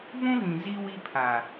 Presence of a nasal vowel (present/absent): present